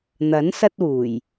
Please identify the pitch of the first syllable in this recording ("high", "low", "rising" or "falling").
rising